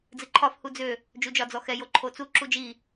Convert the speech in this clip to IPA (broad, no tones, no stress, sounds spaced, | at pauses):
d͡z ɨ ǃʰ ɒ f h u d͡z ø | d͡ʒ u d͡ʒ ɒ d͡z ɔ x ɛ j o ǃʰ o t͡s u ǁ u d͡ʒ i